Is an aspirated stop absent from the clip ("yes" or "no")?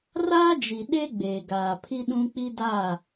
no